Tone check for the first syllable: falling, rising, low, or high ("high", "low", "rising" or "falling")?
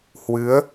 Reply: rising